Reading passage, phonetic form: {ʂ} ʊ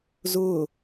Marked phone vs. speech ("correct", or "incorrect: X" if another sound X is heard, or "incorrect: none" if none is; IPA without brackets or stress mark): incorrect: z